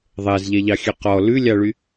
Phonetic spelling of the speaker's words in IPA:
ðˤ ɛ z ʎ ɛ ʎ ɑ xʲ ø q ɔ l ʉ lʲ ɑ ɭ y

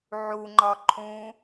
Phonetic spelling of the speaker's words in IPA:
ʕ u ŋ͡ǃ ɒ ǃʰ ũ

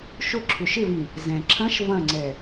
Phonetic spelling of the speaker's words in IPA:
ʃ ʊ ǁʰ ʏ ʃ ɪ v ĩ | z ɛ̃ ǁʰ ɐ̃ ʃ v ɐ̃ ŋ͡ǀ ɛ

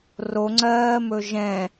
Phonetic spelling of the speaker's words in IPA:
r o ŋ͡ǀ ɜː m ɵ ʒ ɛ̃

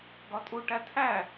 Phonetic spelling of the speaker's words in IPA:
ɡ ɒ tʼ u ʈ æ tʰ æ

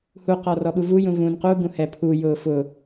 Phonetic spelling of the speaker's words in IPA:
h u q ɔ r ɔ ɓ u v u j ũ v ũ n q u ɡ ũ h ɛ pʰ u j ʊː f ʊ

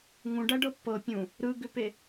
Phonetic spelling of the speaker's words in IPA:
ŋ ũ ɖ æ ɖ ɤ pː ɤ pʲ ũ | ɾ ɯ ɡ ʏ p e

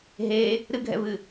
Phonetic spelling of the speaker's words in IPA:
ɦ e | ɾ ɨ ɡʱ ɛ̰ v ɨ

